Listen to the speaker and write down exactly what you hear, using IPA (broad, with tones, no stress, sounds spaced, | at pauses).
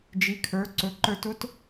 d͡ʒ i˩˧ kʰ ə˞˩˧ ǀ ɵ˩˧ ǃ ə˞˧ t ʊ˥ t